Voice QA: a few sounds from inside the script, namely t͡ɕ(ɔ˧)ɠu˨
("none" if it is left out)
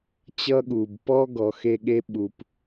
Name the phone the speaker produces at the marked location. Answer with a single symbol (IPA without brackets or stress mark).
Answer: ʌ˧